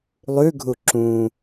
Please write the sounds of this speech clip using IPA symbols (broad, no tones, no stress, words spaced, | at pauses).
lˠʉɡʱu ǁũ